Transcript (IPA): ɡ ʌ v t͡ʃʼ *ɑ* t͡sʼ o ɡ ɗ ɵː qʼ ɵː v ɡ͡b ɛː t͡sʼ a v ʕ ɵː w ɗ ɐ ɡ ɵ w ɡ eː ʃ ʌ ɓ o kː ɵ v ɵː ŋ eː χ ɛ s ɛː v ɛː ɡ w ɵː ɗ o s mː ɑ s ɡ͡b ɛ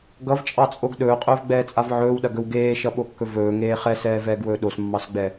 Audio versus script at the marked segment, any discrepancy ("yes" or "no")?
no